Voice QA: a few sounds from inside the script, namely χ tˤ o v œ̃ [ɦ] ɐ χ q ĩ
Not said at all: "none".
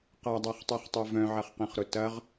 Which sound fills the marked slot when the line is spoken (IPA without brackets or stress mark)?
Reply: ʕ